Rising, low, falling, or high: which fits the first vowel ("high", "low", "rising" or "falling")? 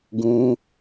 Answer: high